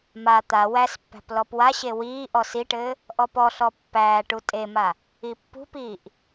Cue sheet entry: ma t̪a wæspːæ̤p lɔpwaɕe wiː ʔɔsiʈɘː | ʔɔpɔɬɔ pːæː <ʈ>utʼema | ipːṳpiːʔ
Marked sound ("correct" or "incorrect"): correct